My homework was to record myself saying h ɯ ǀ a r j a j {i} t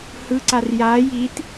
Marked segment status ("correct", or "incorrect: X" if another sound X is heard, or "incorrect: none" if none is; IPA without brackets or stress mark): correct